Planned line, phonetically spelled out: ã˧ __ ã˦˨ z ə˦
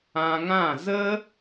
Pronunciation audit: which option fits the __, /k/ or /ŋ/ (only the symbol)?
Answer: ŋ